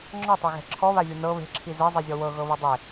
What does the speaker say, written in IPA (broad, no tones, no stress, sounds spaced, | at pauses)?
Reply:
ŋ͡ǁ ɔ tˤ ɛ ɣ ɛ̤ ǁʰ ɔ β a vʲ o n ɤ β e̤ ǁʰ i z e zˤ i zʲ ɔ w ɤ ɣ ɤ β ɯ dˤ e